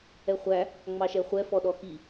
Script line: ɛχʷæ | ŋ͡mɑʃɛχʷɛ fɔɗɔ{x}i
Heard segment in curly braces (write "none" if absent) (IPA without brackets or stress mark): x